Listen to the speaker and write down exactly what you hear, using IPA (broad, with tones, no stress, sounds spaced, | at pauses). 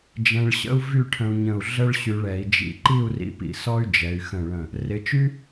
d͡ʒ ɛ̃˧ ɭ ɕ ə̰˥ u̯ v y˥˧ ʈʰ ə̃˧ u̯ ɲ ə̃˧˩ u̯ ɮ ə˥ ɭ ɕ y˧ ɭ ɛ˩˧ i̯ d͡ʒ ḭ˧ ǃ i˥˧ u̯ r ḭ˧ p ḭ˧˩ s ɔ˥ y̯ d͡ʒ ɛ˩˧ y̯ x ə̃˧˩ ɭ ə̃˧˩ | r ɪ˩˧ t͡ʃ y˥